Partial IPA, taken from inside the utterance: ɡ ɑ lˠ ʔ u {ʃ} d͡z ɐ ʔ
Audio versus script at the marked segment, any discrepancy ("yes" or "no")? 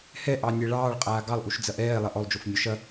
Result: no